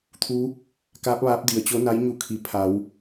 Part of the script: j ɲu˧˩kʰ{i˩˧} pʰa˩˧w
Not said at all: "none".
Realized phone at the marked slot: i˩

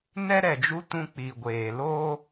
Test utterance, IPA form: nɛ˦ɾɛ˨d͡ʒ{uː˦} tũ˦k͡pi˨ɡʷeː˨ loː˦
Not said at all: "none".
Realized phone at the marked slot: u˦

